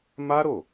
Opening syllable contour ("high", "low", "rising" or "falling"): high